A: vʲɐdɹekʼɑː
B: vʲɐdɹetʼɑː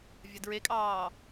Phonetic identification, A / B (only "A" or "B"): A